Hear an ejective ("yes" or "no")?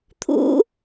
no